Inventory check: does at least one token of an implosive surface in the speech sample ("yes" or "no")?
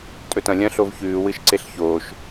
no